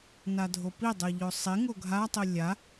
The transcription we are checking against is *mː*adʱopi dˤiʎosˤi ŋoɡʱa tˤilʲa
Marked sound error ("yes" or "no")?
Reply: yes